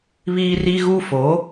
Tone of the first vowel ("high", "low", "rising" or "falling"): high